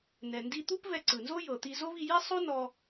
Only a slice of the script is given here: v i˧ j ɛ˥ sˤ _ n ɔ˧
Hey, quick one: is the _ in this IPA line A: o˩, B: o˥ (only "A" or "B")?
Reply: B